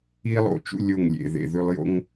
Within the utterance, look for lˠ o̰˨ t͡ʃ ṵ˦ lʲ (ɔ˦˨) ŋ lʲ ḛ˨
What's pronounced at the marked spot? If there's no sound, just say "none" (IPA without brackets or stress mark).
o˦˨